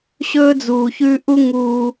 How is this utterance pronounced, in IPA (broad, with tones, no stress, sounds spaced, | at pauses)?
ɕ ɵː˦ d͡z uː˨ ç ʉ˦ ʔ u˦ ŋ uː˧